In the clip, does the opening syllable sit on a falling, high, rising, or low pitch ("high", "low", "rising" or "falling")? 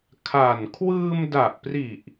low